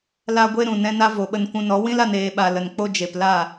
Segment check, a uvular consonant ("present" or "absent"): absent